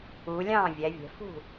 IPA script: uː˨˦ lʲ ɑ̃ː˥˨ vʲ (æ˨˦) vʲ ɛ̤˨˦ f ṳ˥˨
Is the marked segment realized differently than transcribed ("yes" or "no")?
no